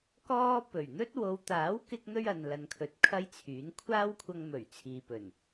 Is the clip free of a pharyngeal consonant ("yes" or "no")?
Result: yes